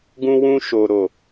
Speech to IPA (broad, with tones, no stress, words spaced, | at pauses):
ɡũ˨wũ˨ ʃo˨ ɾo˨